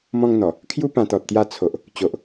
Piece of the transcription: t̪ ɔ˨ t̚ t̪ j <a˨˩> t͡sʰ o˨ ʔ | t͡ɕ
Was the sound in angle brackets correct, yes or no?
no